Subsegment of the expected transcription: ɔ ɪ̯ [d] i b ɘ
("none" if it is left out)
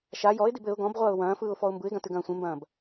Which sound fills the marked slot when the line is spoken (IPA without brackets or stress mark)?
d